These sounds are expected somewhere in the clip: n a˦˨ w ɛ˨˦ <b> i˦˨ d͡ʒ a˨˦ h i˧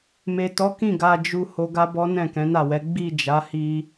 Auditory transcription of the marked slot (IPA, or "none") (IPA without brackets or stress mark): ɡ͡b